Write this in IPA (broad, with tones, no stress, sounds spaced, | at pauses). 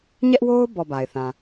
ɲ ɛ˦ ʔ w o˦ ʊ̯ b ɔ˨ b a˨ ɪ̯ θ ã˨